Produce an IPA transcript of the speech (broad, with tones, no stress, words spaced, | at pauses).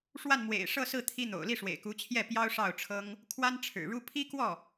ʂwa˥˩nmwḛ˨˩ɪ̯ʂɤ˥˧sɹ̩˥˩ t̪ʰi˥n̪o̰˨˩ʊ̯ li˥˩ʂwḛ˨˩ɪ̯ku˧˥t͡ɕʰjɛ˥˩ pjɑ˥ʊ̯ʂɑ˥˩ʊ̯ʈ͡ʂʰɤ˥ŋ | kʰwa˥nʈ͡ʂʰɻ̩˨˩ɻu˥ pʰi˥kwɔ˥˩